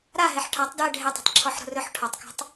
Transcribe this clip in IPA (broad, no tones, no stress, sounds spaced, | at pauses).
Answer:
ɾ a ɦ e ħ ʈʰ a tˤ d j ɛ ɖʱ e tˤ ɛ̤ tˤ ǁʰ ɔ ħ ɾ o̤ r ɵ ħ ʈʰ ɒ tˤ k ɔ̤ tˤ